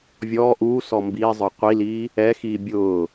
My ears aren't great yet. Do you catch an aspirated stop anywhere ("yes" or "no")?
no